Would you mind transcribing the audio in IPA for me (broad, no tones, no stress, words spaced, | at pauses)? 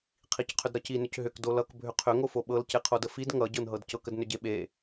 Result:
qʰicqʰʏdɾʌci nʏcɦʏk dolʌk bʱʏqʰʏ ŋofoɓɤl ceqʰodəfid ŋʌ ɟɤnɦɤdcɤk ədnʏɟeɓe